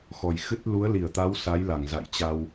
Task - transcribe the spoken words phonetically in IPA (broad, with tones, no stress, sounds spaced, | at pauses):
x ɔ˨˩ j x ɨ˦˥ t̚ l u˨˦ ə̯ l i˧˩ ə̯ t̪ a˨˦ w s a˨˦ j l a˧˩ ŋ z a̰˧˨ j t͡ɕ a˧ w